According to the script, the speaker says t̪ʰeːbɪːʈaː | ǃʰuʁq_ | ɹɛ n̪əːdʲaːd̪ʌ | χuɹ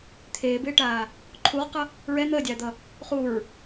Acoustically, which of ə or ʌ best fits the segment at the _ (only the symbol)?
ʌ